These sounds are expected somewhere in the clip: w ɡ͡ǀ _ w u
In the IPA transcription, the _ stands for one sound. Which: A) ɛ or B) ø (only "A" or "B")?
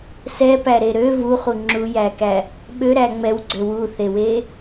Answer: B